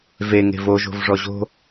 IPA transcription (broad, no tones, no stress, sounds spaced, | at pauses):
v e ŋ e̤ v o ʒ o̤ v ʐ ɔ ʑ o̤